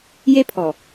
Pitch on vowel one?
high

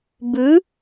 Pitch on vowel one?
rising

